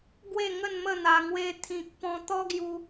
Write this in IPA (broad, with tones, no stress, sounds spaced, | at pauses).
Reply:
ɡ w e˥˧ ŋ ə˥˧ n m ə˥˧ n̪ a˧ ŋ w e˦ t̪ʰ ĩ˨ k̚ p ɔ̃˧ t̪ ɔ˦ ɡ j u˧